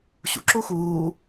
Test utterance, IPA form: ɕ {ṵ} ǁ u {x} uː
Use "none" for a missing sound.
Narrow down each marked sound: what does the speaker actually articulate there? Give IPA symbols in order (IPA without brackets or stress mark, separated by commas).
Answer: ṵ, x